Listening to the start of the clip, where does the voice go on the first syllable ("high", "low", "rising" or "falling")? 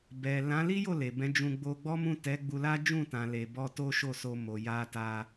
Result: low